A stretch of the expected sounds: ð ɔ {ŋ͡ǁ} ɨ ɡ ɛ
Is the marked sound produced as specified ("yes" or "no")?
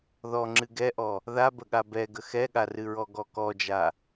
yes